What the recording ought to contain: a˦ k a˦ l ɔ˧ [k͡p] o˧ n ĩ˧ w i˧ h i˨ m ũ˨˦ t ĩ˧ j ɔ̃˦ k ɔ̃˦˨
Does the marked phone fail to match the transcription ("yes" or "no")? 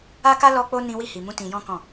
no